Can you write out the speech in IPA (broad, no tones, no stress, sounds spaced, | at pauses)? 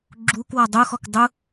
ɡ͡ǁ u k w ɔ dˤ u x ɔ k dˤ u